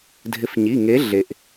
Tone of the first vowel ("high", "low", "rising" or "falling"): rising